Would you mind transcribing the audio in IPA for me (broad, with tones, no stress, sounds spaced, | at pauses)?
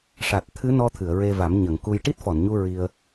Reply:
ʂ a˨˩ t̚ t̪ʰ ɨ˧˥ n ɔ˧ t̪ʰ ɨ˨˩˨ ə̯ ɹ e˧ v a˨˩˦ m ɲ ə˨˩˨ ŋ k u˧ j ʈ i˦˥ t̚ f ɔ˨˩˨ n ɲ u˧ ɹ i˧ ə̯